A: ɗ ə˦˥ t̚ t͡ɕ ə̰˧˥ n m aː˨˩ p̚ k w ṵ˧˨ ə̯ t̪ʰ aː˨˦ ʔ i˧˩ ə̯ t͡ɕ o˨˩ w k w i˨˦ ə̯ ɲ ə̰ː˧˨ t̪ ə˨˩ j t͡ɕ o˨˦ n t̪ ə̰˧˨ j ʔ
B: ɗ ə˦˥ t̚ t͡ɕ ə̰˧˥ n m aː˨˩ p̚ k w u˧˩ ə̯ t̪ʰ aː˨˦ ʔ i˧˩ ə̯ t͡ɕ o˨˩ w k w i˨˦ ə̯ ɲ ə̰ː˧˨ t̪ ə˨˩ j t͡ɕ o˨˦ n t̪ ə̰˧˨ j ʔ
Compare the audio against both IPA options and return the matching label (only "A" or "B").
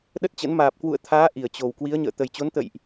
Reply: A